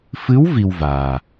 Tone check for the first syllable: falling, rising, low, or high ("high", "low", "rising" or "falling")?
rising